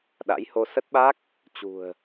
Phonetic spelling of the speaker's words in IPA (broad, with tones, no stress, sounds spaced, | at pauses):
ɗ a̰˧˥ j h o˧ s ə˦˥ t̚ ɓ a˦˥ k̚ | t͡ɕ ṳ˨˩ ə̯